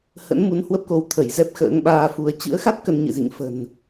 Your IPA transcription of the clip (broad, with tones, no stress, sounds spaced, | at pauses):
h ə̰˧˥ n m u˨˦ n h w ə˦˥ p̚ k o˨˦ w t̪ʰ ə˧˩ j z ɛ˦˥ p̚ x ə̰ː˧˥ ŋ ɓ aː˧ f u˧ ə̯ t͡ɕ ɨ̰˧˥ ə̯ x a˦˥ t̚ k ə˧ n ɲ ɨ̰˧˨ z ḭ˧˨ ŋ f ə̤˨˩ n